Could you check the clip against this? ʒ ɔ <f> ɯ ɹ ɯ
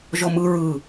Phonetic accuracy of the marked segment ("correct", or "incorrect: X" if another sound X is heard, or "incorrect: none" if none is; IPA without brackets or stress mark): incorrect: m